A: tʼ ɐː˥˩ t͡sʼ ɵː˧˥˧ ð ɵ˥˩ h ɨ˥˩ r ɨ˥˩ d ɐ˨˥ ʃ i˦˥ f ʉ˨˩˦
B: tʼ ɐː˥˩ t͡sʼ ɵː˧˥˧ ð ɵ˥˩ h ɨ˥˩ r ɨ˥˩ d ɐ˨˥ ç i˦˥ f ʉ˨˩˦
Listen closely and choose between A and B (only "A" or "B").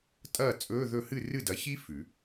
B